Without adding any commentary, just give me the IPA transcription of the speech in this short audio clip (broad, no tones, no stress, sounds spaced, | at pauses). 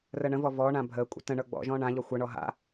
r ə ɳ ə̃ v ɔ v ɔ ɳ ã bʱ əː kʷʼ ə̰ t ə̃ ɳ ɤ ɡ͡b ɔ̰ ʒ ɔ̃ ɳ ã ʎ ɔ xʷ ɤ ɳ ɔ ɦ a̰